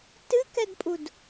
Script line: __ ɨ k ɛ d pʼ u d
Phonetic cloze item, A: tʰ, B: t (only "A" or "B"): B